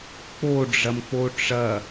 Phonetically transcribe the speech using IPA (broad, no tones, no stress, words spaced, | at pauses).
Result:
k͡poɖ͡ʐɐmk͡po ʈ͡ʂɐ